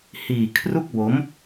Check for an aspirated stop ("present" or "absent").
present